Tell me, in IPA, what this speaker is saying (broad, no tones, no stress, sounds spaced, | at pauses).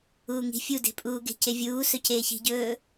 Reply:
uː ŋ i̤ fʲ u d e̤ pʼ uː ɡ e̤ c e vʲ uː s ɵ c eː ç i̤ ɟ ɵː